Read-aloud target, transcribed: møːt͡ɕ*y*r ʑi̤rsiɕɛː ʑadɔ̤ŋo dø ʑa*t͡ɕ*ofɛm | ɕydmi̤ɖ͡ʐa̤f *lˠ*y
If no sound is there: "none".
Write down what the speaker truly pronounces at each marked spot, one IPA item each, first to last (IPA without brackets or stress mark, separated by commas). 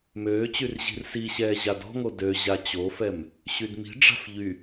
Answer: y, t͡ɕ, ʎ